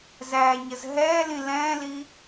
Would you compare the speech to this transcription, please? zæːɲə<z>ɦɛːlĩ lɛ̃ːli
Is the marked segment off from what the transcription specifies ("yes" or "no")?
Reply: no